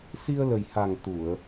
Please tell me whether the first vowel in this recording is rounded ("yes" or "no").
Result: no